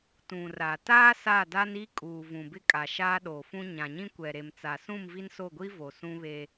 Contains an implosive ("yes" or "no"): yes